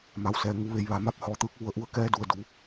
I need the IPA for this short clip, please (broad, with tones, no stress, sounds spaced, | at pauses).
m a˩ w s ɛː˩ ŋ u˩˧ ʋ e˩˧ j ʋ a˩ m a˥˨ p̚ h ɔː˧ t̪ ɯː˧˥ k̚ ʋ u˧ ə̯ ʔ u˥˨ ə̯ k ɛː˧˥ d u˩ ə̯ d u˩˧